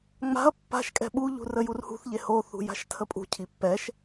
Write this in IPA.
ŋ͡m a̤ ɐ̯ pː a̤ ʃ kʼ ɛ̤ ɓ u ʎ ṳ r ə j u r h ṳ θ ʎ e h o θ ṳ j a̤ ʃ tʰ ə pʼ ṳ cʰ i pː ɛ ʃ

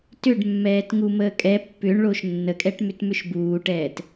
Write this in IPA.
t ʏ ɖ mː ɛː t ŋ u m əː kʼ ɛ pː ʏ ɳ ɭ o ʃ nː ə kʼ ɛ ʈ m ʏ t m ʏ ʃ b uː ʈ ɛː t

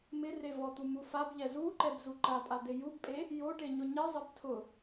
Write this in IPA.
m ɪ r e v ɔ t̪ u m u f a b ʎ ɛ z u ǃ ɛ b z u ǃ a pʼ a d̪ e j u b pʼ e | j o ʈ e ɲ ʊ ɲ e zˤ ɛ b tʰ ʊ

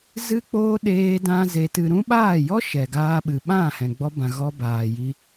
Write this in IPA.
z ɨ˦ k͡p oː˦ ɗ eː˧ d ã˧ z e˧ t ɨ˧ ɾ ũ˦ ɓ aː˦˨ j ɔ˦ ʃ ɛ˨ ɡ aː˧ ɓ ɨ˨ ɓ ã˦˨ h ɛ̃˨ ɡ͡b ɔ˧ b ã˨ ɣ ɔ˧ b aː˨ j i˧

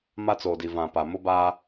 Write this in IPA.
m a˦ t͡s o˨ d i˨ v ã˨ p a˨ m ʊ˦ b aː˦

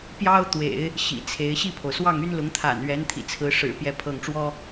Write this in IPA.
p j ɑ˥ ʊ̯ t̪ w ḛ˨˩˦ ɪ̯ | ɕ ḭ˨˩ t͡sʰ e˧˥ ɪ̯ ɕ i˥˩ pʰ o˩ ʊ̯ s w ɑ˥˩ ŋ y˥ n l ʊ˧˥ ŋ t̪ʰ a̰˨˩ n ɥ ɛ˧˥ n t̪ʰ ḭ˨˩ t͡sʰ ɹ̩˧˥ ʂ ɻ̩˨˩ p j ɛ˥˧ pʰ ɤ˥˩ ŋ ʈ͡ʂ w ɔ˥

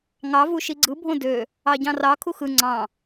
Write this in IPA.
ŋ ɑ v u ʃ i ɡ͡ǀ ɯ bʱ õ d ø | ɑ ɟ ɑ̃ r ɑ kʰ u x ɯ ŋ͡ǀ ɑ̃

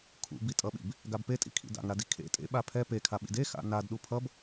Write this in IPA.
kʰ ṵ b i tʼ ʌ ɓ ḭ b | ɡ a b p e tʼ ḭ kʰ ḭ d a̰ ŋ ɾ a d i kʰ ḛ tʼ ḛ ɓ a pʰ ɛ p e kʰ a ɓ ḭ d e x a̰ n a d ɗ u pʰ ʌ b

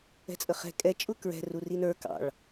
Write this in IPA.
ɛ̤ t͡sʼ ə χ ɛ̤ kʼ ɛ t͡ʃʼ ʊ k ɹ ɛ̤ r u r i n ə˞ k ɑ̰ ɭ

